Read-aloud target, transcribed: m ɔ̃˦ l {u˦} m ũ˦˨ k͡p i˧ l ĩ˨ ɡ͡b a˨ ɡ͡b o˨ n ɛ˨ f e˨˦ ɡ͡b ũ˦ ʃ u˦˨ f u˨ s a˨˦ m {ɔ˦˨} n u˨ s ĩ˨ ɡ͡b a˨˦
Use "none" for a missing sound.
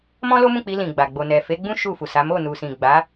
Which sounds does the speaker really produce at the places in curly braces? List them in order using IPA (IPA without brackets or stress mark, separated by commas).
o˦, o˦˨